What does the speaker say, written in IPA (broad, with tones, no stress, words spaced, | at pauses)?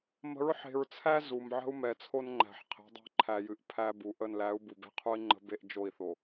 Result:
mə̤˨˦ɹħe̤˨ɹt͡sʰæ˦ zu˨m ʕə̤˦u̯mɛ˨t͡sʰo˦nŋ͡ǃæ̤˨ħ qʰe̤˨˦dˤe̤˦˨ǃʰæ˨jɨ˨ʔ pʰæ˦bu˨ ʔə˦˨n læ˨˦u̯ bu˨be̤˦qʰu˦i̯ŋ͡ǃə̤˦ be˦ʔd͡ʒo˦˨i̯θo˨